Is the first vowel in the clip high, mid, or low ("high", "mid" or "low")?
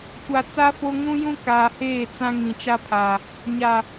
low